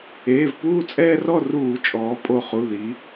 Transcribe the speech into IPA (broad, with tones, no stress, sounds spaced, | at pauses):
eː˩˧˩ v p uː˥˨ t͡sʼ ɛː˦ r ɔ˥˨ r uː˧˩˧ t͡ʃʼ ɔː˩˧ pʼ o˧˩ χ u˩˧˩ ð i˩˧